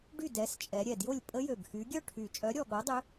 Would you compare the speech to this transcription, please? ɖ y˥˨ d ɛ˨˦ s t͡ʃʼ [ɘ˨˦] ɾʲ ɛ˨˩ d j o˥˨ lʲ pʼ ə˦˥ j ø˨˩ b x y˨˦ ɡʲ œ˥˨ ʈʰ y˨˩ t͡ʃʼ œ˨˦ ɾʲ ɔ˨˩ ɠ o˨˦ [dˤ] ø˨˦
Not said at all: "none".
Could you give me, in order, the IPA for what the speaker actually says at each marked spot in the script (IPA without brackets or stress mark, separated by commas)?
ɛ˨˦, dˤ